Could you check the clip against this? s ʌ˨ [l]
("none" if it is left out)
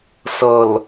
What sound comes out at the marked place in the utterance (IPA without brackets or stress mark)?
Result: l